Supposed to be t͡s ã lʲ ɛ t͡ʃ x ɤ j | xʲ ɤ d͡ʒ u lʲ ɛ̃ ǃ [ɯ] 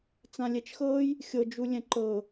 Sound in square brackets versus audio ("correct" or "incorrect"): incorrect